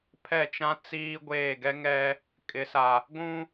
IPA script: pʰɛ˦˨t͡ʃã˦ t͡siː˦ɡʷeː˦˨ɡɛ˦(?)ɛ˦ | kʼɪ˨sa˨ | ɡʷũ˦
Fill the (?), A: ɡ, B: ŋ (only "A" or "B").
B